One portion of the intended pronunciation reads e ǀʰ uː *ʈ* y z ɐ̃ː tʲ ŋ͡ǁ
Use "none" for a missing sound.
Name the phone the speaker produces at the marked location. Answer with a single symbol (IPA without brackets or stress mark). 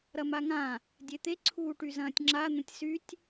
ʈ